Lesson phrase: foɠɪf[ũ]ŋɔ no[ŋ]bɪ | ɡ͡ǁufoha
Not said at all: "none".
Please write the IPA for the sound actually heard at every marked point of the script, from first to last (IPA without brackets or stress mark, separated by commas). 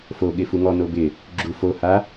u, none